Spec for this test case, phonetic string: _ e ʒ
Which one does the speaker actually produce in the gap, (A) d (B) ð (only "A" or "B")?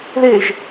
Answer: B